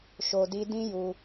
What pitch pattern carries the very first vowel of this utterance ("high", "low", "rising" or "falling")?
low